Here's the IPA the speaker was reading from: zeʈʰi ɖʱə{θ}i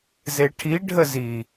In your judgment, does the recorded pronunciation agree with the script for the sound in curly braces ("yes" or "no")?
no